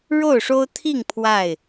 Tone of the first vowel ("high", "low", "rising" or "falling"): falling